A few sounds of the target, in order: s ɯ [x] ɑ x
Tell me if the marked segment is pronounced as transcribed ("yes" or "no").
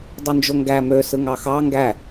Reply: no